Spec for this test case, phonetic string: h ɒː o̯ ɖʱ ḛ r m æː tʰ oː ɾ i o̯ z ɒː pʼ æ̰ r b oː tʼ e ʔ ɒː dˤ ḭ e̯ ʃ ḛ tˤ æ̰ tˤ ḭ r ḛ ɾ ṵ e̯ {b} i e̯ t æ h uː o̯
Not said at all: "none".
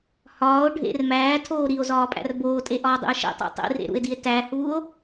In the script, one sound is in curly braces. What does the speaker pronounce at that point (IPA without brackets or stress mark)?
d